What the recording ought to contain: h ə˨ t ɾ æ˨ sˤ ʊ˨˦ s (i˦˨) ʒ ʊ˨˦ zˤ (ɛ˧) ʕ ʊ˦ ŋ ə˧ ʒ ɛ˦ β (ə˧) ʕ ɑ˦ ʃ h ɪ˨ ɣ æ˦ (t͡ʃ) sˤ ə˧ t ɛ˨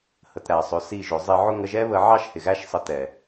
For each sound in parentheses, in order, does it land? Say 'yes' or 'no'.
yes, no, yes, no

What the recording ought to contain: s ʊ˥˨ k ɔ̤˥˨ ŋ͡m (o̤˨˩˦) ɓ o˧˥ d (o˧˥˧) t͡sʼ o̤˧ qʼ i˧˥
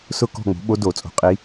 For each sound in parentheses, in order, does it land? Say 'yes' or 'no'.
no, no

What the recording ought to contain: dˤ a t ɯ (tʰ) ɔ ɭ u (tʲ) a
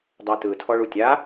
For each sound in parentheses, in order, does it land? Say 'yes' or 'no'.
yes, yes

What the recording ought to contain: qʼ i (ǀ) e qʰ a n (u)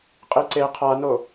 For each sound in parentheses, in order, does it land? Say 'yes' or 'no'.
yes, no

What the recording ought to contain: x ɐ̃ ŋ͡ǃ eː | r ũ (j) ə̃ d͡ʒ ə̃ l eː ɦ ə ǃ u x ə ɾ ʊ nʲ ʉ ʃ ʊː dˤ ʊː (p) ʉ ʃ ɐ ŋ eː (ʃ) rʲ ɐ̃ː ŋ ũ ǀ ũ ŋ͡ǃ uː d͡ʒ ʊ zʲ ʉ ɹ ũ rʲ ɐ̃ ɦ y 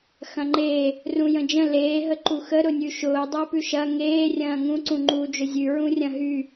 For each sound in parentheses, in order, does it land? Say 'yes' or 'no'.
yes, yes, no

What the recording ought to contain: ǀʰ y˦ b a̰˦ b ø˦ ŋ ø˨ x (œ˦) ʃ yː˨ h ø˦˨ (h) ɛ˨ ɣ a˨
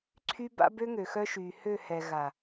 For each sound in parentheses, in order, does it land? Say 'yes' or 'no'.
yes, yes

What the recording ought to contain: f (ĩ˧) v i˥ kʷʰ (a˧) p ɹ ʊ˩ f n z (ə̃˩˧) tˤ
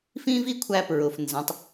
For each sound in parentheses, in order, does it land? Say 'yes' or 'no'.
no, no, yes

